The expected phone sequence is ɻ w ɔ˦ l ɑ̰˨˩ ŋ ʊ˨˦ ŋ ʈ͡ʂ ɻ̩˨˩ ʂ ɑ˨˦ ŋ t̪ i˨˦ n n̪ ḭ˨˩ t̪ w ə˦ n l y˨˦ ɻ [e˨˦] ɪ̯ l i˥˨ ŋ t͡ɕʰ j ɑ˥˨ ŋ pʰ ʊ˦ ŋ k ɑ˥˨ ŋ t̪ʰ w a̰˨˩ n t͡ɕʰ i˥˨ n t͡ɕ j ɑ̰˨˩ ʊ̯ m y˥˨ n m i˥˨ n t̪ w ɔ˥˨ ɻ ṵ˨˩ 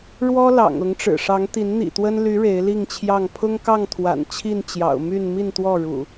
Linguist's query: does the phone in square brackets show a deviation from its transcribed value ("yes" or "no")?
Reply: no